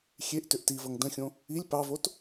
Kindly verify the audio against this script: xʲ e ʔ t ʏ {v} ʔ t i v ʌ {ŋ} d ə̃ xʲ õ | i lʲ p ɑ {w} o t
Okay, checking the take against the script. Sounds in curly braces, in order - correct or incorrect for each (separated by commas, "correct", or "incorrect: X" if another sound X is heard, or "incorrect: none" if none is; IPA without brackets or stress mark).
incorrect: none, correct, incorrect: v